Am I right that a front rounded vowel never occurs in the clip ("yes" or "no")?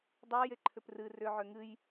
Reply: no